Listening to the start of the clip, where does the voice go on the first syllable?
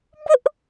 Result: high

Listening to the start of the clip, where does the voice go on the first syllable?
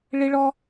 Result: high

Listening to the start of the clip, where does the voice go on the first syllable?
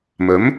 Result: rising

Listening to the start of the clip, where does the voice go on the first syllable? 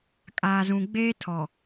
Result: low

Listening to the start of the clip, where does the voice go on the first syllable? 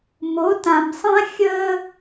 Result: rising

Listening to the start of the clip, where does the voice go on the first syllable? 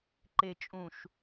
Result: low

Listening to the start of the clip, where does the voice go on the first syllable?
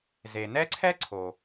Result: low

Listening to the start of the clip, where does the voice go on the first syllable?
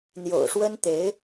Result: low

